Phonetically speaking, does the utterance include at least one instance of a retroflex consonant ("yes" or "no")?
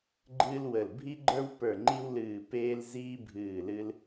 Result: no